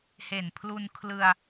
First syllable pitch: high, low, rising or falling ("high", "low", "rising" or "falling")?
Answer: low